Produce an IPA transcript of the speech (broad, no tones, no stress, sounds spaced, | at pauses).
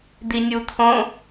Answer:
d̪ i nʲ u t̪ʰ õ